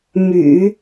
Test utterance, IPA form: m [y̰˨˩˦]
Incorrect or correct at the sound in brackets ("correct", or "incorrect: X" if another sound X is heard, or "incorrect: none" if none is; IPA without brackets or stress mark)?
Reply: correct